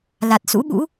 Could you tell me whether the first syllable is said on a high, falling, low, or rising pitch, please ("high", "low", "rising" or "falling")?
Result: low